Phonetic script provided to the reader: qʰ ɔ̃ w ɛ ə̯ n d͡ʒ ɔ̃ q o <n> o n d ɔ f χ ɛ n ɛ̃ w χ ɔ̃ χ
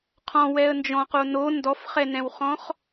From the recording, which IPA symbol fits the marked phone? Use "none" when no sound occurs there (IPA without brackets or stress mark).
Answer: n